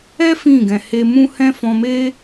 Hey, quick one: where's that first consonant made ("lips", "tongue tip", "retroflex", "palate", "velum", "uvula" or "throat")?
lips